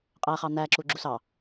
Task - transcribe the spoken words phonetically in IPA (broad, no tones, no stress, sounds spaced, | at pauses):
qʼ æ χ ɑ n̪ æ ǁ u ɡ͡ǁ u s ɑ